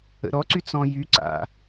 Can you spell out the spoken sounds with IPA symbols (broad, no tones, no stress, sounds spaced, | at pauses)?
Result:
ə̰ ɾ ɔ ǀ y t͡s ɔ̃ j y ǀ a̰